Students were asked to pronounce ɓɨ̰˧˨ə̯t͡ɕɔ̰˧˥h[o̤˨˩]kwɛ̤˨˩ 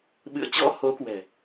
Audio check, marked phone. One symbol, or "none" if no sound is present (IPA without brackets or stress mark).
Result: o˨˦